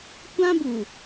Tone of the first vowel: high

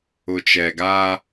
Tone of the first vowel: low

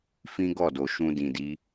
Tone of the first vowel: high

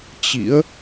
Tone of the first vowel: rising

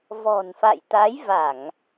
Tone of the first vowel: low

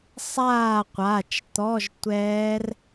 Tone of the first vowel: falling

